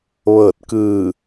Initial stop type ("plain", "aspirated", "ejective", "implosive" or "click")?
plain